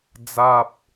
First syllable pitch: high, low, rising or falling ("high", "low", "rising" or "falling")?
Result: low